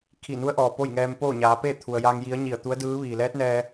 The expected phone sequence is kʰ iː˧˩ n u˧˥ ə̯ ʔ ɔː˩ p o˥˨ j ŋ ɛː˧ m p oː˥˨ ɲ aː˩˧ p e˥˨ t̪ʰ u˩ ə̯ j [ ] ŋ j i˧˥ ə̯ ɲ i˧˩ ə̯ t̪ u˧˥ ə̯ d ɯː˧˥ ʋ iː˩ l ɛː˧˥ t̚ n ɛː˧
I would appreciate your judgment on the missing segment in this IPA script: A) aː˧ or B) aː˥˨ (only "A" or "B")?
A